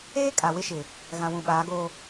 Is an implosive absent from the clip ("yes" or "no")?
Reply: no